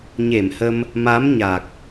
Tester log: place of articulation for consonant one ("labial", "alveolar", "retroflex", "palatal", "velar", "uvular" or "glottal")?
palatal